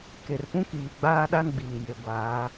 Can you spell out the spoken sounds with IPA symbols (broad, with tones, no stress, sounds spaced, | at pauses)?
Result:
k e˨ r p ũ˦ k iː˨ ɡ͡b aː˦ ɗ a˦ n ɡ͡b iː˨ j e˨ ɡʷ aː˨˦